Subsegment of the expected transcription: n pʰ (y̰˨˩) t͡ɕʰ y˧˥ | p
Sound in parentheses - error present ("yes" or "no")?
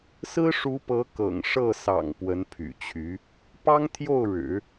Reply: no